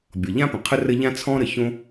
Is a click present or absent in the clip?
absent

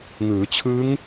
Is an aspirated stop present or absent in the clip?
present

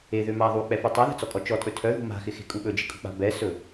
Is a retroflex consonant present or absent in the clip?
absent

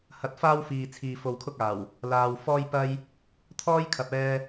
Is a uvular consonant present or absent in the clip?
absent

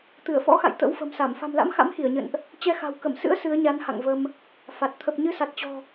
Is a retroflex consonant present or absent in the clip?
absent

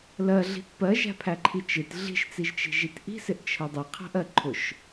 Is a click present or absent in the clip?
present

